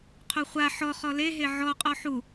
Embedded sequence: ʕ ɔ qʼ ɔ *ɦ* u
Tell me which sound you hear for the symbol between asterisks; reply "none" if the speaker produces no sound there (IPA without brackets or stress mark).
ħ